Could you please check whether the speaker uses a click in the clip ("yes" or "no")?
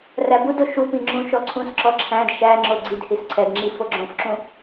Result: yes